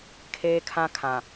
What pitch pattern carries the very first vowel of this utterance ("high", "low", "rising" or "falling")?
high